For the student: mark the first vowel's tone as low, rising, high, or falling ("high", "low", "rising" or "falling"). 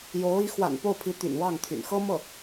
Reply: rising